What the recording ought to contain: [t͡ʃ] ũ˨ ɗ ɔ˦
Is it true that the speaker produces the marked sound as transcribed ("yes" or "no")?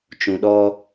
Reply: yes